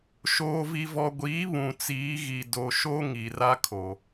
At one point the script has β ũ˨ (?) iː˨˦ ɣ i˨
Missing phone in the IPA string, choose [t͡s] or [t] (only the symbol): t͡s